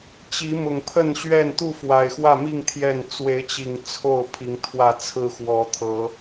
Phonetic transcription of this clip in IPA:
t͡ɕ i˨˦ m ʊ˨˩ ŋ pʰ ə˥˨ n ɕ ɥ ɛ˥˨ n t̪ u˥˨ f w a˨˩ ɪ̯ x w ä˥˨ m i˥˨ ŋ t̪ʰ j ɛ˥˨ n t͡s w e˨˦ ɪ̯ t͡ɕ i˨˩ ŋ t͡sʰ o˥˨ ʊ̯ pʰ i˨˦ ŋ t̪ʰ w ä˥˨ t͡sʰ ɹ̩˦ x w ɔ˨˦ t̪ʰ ɤ˨˦

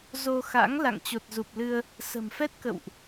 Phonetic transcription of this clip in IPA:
z o˧ x a̰˧˥ ŋ l a̰˧˨ ŋ t͡ɕ o˨˩ t̚ z u˨˩ p̚ l ɨ˧ ə̯ | s ə̤˨˩ m f ɛ˦˥ t̚ k ə̰˧˨ w ʔ

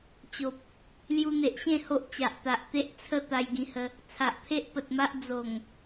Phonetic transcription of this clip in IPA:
t͡ɕ o˨ p̚ | l j u˧ n̪ e˨ ʔ ɕ ẽ˥˧ h o˦ ʔ t͡ɕ a˨ ʔ t̪ a˨ ʔ t̪ e˦ ʔ t͡sʰ ə˥˧ t̪ a˧ j ɡ ĩ˧ h ə˧ | t͡sʰ a˨ ʔ pʰ e˦ ʔ p ə˨ t̚ m a˦ ʔ d͡z o˨˩ ŋ

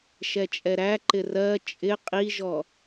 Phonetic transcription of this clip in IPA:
ʃ ɛ t͡ʃʼ ɛ ɾ æ ǃ ɪ r ɜ t͡ʃʼ ɪ qʼ i ʒ ɔ

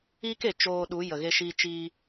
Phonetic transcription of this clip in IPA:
iː˦ k e˨ t͡ʃ oː˧ ɗ u˨˦ j ə˨ ɣ e˧ ʃ iː˧ t͡ʃ iː˧

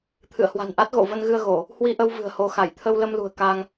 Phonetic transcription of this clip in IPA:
t̪ʰ ɨ̰˧˨ ə̯ h w a̤˨˩ n ʔ a˦˥ t̚ ɣ o̰˧˨ v ə˧ n ɣ ɨ˧ ə̯ ɣ o˧˩˨ | h w i˧ ʔ ə˧ w v ɨ̤˨˩ ə̯ h o˧ x a˧˩ j t̪ʰ ə˧ w l ə˧ m l ṳ˨˩ ə̯ k aː˧ ŋ

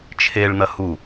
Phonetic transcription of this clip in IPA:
t͡ʃʰ e ɭ n̪ ɐ h u

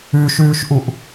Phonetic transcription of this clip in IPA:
ʉ ʃ ʉː ʃ ʔ u ʔ

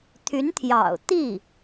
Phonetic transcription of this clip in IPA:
t̪ʰ y˧˥ n t̪ʰ j ɑ̰˨˩ ʊ̯ t̪ i˥˩

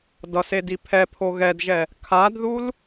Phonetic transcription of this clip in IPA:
d ʌ s e d i pʰ ɛ pʰ o ɣ ɛ d ʒ ɛ | kʰ a d ð u l

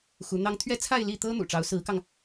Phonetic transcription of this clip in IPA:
x u˧˥ n̪ ɑ˥ ŋ t̪ʰ ɥ ɛ˥ t͡sʰ a˥˧ ɪ̯ l i˥˩ t̪ ɤ˥ n̪ ṵ˨˩ ʈ͡ʂ ɑ˧˥ ʊ̯ s ɹ̩˧˥ k ɑ˧ ŋ

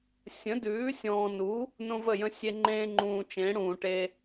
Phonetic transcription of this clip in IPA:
sʲ ə̃˩˥ d ʉː˩˥ sʲ ɔ̃ː˨ n u˩˥ | n õ˦ v ə˥˩ j ə̃˦ sʲ e˦ ŋ͡ǃ ẽː˦ ŋ͡ǃ ũː˨ t͡ʃ ẽ˩˥ ɽ ũː˨ ʈ e˦

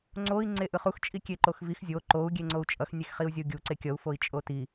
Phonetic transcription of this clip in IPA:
ŋ͡ǀ o i̯ ŋ͡ǀ e ʔ ɯ χ u x t͡ʃʼ i kʲ e ǃ o x v i x zʲ o ǃ o u̯ ɡʲ e ŋ͡ǀ o u̯ t͡ʃʼ ʌ x nʲ e x χ i u̯ zʲ ʌ u̯ ɡʲ u ǀ e kʲ ʌ u̯ f o i̯ t͡ʃʼ o t i

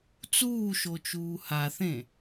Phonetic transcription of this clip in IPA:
t͡s uː ʃ o t͡ʃ uː h a θ ẽ

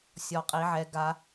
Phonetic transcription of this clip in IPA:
sʲ ɔ˦˥ qʼ i˦˥ ʕ ɛ˦˥ ɡ a˦˥

